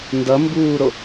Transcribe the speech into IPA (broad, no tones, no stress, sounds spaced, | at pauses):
n d ʌ m b uː ɾ o